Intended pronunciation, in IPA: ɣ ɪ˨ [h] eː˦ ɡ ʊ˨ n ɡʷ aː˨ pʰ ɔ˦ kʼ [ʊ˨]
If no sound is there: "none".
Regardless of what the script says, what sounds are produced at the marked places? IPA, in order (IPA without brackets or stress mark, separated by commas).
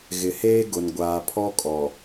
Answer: h, ɔ˨